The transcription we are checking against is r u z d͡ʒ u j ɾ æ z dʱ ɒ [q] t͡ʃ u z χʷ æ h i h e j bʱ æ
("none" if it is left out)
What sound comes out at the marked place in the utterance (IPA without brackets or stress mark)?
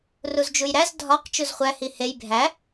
q